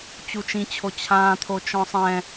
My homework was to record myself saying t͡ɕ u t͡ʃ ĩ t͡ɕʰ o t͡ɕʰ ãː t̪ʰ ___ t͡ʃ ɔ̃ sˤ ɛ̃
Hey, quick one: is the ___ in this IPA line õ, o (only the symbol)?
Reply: o